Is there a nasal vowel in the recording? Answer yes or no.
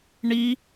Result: no